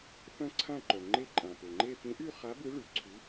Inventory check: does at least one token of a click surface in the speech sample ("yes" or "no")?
yes